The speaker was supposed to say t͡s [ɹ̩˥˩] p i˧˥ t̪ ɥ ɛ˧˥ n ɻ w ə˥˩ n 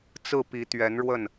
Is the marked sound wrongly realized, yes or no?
no